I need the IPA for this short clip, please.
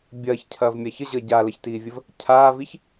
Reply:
bʲ ɐː ç cʰ ɐː v mʲ a ç ə ʑ əː ɟ a l ə ç t iː vʲ ə v | cʰ aː v i ç

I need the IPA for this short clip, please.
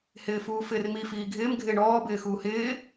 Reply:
h ɪː f uː f ɪː r m i f iː ɡʱ ɪː m ɡʱ ɪː ɳ ɔː b ɪː x uː h ɪː

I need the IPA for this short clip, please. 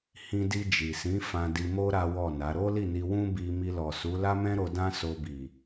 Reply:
h ĩ˧ d i˧ d͡ʒ i˨ s ĩ˨˦ f ã˧ d i˧ m o˦ ɾ a˦ w ɔ˦˨ n a˨˦ ɾ o˦ l i˦˨ n i˧ w ũ˦ b i˧ m i˧ l ɔ˨ s u˨˦ l a˦ m ɛ̃˦ ɾ o˧ d ã˦ s o˧ b i˨

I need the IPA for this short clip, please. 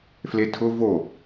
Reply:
f l e tʰ ʊ v o

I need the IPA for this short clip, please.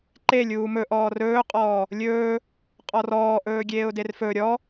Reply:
ǃ e lʲ uː m ɵ ʔ ɔː r ɵː qʼ ɔː | lʲ ɵː | qʼ ɔ r ɔː ʔ ɵː ɡʲ eː ʊ̯ d e r f ɵ ɾʲ ɔ

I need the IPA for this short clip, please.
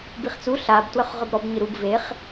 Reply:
b i χ t͡s u ɬ a b t w œ χ ʁ œ b ɾ ɔ b ɲ ɨ ɾ u b v e χ

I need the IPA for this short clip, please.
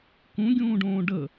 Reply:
k ũ ɡʲ ũː ɖ õː ɖ ə

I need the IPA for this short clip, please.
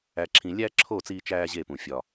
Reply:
æ˨ ǁʰ ĩ˨ lʲ æ˦ ǁʰ o˦˨ t͡s iː˦ t͡ʃ æː˦ ʑ e˦˨ p ũ˨ fʲ ɒ˨

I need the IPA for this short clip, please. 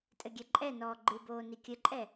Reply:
tʼ ɘ ɡʲ ɛ ǃʼ ɛ n ɔː ɡ͡ǃ ɨ b oː n i kʲ ɘ ǃʼ ɛ

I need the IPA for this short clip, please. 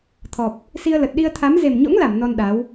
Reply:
t̪ʰ ɔ˨˩ p̚ | s i˧ ə̯ l ə˨˩ t̚ ɗ i˧ ə̯ t̪ʰ a˨˦ m z e˨˩ m ɲ o̰˧˥ ŋ l a˧˩ m n ɔ˧ n ɗ a˨˦ w

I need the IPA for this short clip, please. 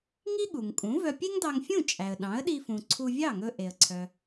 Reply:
ŋ i˥ ɠ u˩ ŋ kʼ ũ˩˥ v œ˧ pʲ e˥ ŋ d ɑ˧ ŋ fʲ ũ˥˩ t͡ʃʼ æ˩ ə̯ ɗ ɑ̃˩˥ ə̯ ɗ i˧ f ũ˩ ǀʰ u˧ vʲ ɑ˥˩ ŋ ɵ˧ ʔ e˩ ə̯ ǀʰ œ˩

